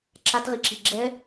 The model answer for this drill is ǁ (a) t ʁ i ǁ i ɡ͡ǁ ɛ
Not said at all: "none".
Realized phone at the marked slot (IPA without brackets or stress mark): a